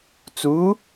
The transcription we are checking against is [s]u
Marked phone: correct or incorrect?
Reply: incorrect